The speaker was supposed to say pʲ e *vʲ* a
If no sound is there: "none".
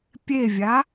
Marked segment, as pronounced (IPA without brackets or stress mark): vʲ